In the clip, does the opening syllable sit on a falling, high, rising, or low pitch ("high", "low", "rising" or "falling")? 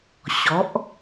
rising